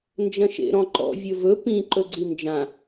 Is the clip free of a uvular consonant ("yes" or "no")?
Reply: yes